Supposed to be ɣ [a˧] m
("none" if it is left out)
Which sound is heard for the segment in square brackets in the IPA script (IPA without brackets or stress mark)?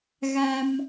a˧